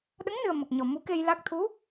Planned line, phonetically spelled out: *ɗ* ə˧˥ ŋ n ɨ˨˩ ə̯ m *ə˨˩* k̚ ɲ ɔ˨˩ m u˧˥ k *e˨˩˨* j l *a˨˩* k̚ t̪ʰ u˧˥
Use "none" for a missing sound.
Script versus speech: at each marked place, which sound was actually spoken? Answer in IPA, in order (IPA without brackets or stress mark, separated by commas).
ɗ, ə˨˩, e˧, a˦˥